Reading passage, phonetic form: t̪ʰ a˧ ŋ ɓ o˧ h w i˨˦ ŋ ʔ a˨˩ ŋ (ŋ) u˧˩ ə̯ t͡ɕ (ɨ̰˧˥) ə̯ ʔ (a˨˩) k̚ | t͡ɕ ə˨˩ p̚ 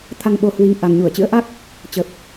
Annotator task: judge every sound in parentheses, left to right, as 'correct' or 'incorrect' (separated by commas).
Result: incorrect, correct, incorrect